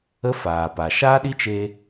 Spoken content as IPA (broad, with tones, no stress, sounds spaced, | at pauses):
ə˦ f aː˨ p a˨ ʃ aː˦ ɗ i˦ t͡ʃ e˧